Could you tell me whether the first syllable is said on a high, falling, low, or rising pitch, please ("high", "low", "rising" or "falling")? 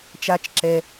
high